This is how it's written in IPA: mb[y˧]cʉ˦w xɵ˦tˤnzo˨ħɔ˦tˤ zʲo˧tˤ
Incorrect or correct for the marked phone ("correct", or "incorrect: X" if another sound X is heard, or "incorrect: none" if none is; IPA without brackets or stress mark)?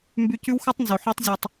correct